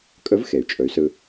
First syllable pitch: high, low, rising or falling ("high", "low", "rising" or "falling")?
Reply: rising